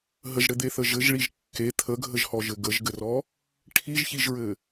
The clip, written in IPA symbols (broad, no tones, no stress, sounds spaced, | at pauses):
ɦ ə ʒ ɽ ɘ d̪ e θ ə ʒ ɘ ʒ ɭ i ʒ kː e t̪ʰ ə ɡʱ ə ʒ h ɔ ʒ ɘ ɡ ə ʒ ɡ ɘ r ɔ | ʈʰ i ʒ ç i ʒ ɹ ɘ